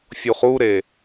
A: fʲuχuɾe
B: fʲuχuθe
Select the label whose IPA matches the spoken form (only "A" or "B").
A